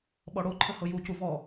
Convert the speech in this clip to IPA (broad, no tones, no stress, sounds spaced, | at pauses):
ɓ ɔ ɽ o ǃʰ ə h ɤ j u c u v ɔ